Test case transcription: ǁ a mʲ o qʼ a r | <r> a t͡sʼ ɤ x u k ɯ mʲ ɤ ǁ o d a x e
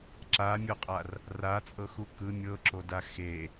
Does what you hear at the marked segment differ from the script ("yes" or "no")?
no